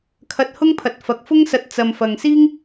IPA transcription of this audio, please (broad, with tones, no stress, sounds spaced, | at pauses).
kʰ ɐ˧ t̚ h ʊ˥ ŋ pʰ ɐ˨˥ t̚ f ɐ˨˥ k̚ f ʊ˥ ŋ s ɐ˧ t̚ t͡s ɐ˨ m f ɐ˨ ŋ s iː˥ ŋ